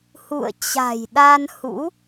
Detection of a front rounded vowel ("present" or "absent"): absent